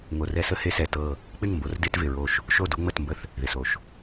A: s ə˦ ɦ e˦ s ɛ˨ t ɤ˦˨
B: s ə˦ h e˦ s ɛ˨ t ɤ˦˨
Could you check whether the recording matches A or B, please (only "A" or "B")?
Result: B